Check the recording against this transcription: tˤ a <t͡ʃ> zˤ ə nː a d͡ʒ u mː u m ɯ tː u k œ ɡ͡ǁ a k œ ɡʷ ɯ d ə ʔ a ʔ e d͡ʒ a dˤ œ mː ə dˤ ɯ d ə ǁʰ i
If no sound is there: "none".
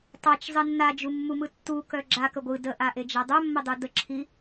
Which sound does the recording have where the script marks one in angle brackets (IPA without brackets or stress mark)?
t͡ʃ